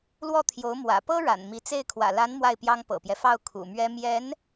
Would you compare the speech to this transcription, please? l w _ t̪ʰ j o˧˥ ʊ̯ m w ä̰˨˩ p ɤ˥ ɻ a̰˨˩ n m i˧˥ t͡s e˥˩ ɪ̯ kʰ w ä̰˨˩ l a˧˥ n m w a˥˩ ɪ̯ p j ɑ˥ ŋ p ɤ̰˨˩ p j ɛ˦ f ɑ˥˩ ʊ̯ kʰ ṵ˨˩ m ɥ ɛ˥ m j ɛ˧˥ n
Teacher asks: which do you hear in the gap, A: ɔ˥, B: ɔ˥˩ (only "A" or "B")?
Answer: B